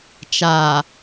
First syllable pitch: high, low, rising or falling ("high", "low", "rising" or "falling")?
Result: low